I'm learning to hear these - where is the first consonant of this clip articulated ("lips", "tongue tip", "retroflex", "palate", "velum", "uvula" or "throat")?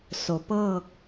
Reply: tongue tip